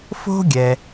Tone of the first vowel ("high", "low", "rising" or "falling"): high